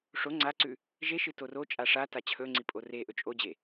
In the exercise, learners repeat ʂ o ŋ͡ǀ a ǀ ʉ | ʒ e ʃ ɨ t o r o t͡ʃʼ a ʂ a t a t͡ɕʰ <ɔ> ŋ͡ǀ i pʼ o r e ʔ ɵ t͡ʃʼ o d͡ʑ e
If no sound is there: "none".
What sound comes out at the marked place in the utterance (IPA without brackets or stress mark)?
ɵ